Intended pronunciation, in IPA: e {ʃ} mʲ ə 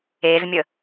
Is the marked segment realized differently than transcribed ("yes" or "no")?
yes